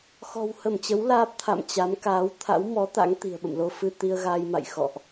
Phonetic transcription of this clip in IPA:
x ɔ̤˨˩ w h ə˧˩ m t͡ɕ ə˨˦ w l aː˦˥ p̚ t̪ʰ a̰˧˨ m t͡ɕ a˨˦ m k aː˨˦ w t̪ʰ a̰˧˥ w m ɔ˨˦ t̪ a̰˧˥ ŋ t̪ i̤˨˩ ə̯ ɓ ə̰˧˨ m l o˧ f ɨ˧ t̪ i˧ ə̯ ɣ aː˧ j m a̰˧˨ j x ɔ̰˧˨ ʔ

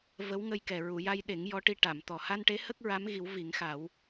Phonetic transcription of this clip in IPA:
v ə˧˥ w ŋ ə˧ j k ɛ˨˩ ɹ u˨˩˨ j a˧ j ɗ e˨˩˦ ŋ j ɔ˧˥ ʈ i˧ ʈ a˨˩˨ m t̪ ɔ˨˩ h a˧ n ʈ e˧˥ h ə˦˥ k̚ ɹ a˧˥ m ɣ i˨˩˦ w v i˨˩˦ ŋ x a˨˩˦ w

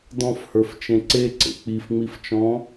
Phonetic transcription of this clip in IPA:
d ɔ̃ f h ə˞ f t͡ʃ ẽ ǀ e ǀ ḛ k͡p i f ŋ͡m i f t͡ʃ ɔ̃

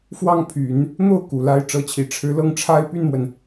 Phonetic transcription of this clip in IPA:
f w ɑ˥˩ ŋ pʰ y˨˩˦ n | n̪ o˥˩ ʊ̯ k u˨˩ l a˧˥ ɪ̯ ʈ͡ʂ ɤ˧˥ t͡ɕʰ i˨˩ ʈ͡ʂʰ ɻ̩˧˥ l ɤ˥˩ ŋ ʈ͡ʂʰ a˥ ɪ̯ p y˥˩ n m w ə˩ n

